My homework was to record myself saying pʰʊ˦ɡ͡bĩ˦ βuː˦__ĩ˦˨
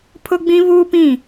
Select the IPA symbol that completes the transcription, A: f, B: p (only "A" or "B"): B